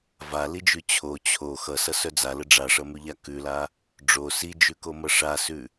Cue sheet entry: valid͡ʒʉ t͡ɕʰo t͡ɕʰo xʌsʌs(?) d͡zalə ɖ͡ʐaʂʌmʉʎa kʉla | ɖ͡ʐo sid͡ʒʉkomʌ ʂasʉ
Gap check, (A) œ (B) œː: A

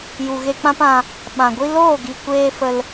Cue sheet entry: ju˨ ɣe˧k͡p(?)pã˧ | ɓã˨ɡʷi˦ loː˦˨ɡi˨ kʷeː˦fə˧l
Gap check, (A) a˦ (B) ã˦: B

